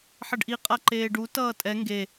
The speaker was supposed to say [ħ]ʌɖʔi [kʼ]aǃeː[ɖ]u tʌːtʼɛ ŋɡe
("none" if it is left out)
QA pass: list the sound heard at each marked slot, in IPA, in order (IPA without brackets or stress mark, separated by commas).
ħ, qʼ, ɖ